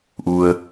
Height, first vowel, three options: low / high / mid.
high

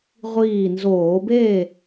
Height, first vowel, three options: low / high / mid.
high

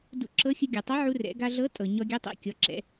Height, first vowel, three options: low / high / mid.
high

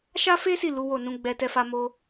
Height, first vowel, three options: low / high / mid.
low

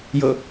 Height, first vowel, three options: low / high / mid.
mid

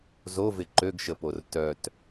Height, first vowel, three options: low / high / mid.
mid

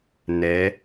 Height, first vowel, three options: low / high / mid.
mid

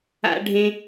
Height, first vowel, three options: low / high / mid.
low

